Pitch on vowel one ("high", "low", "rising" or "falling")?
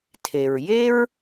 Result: low